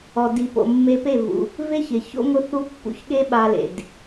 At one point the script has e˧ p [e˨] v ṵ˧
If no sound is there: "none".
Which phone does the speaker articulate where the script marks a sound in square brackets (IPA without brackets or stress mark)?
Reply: e˦˨